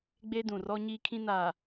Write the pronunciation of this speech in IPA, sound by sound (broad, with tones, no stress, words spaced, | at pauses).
ɡ͡be˦dũ˨rɔ˦ ɲiː˦kʰĩ˦naː˨